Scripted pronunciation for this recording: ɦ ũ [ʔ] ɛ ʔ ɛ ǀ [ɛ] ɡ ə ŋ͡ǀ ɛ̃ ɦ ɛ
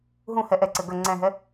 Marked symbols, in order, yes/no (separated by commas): no, no